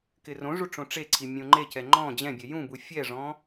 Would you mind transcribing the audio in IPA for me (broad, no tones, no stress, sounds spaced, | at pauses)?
k ɪ r õ ʐ u ʈ͡ʂ õ ʈ͡ʂ e ǀʰ i mʲ õ ŋ͡ǃ e c ɛ ŋ͡ǃ ɔ̃ d͡ʑ ɛ̃ bʲ ɛ j ũ b u fʲ ɛ ʐ ɔ̃